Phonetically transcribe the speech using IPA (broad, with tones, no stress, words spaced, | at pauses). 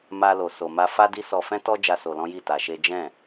ma˦ lo˧so˧ma˦ fa˦di˦ sɔ˧fɛ̃˦tɔ˦ d͡ʒa˦so˧lɔ̃˦ji˦˨ ta˧ʃe˦ d͡ʒɛ̃˦˨